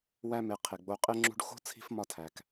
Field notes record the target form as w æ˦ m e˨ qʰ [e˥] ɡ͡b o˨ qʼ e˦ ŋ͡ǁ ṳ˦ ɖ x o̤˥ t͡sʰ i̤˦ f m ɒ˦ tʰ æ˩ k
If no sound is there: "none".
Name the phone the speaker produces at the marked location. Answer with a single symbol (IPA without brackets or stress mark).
e˩